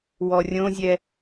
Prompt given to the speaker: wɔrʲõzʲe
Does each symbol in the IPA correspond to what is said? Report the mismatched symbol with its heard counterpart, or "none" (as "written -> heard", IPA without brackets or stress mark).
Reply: e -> ɛ